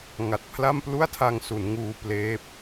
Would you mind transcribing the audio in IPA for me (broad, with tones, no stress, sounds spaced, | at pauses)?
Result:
ŋ a˨˩ t̚ pʰ l a˥˩ m p l u˥˩ a̯ tʰ a˧ ŋ s u˩˦ n ŋ uː˧ p l eː˦˥ p̚